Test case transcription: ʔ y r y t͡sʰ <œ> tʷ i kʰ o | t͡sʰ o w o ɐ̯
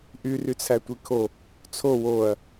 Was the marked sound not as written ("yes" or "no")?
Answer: yes